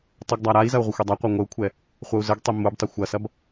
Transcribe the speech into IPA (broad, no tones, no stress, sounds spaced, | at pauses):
tˤ ə ɡ dˤ a ɾ a i̯ z ɐ u̯ ʁʷ ə xʷ i dˤ a qʷ a ŋʷ ə u̯ kʷʰ ɛ | χʷ ɐ u̯ z ə ɡ tˤ i m u b tˤ ə xʷ ɐ s ɐ b